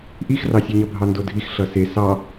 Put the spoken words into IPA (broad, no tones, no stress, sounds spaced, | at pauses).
ʔ i x r ɑ sʲ e ɲ ʌ bʱ ɑ n d o dʱ i x ɬ ʌ s e s ɑ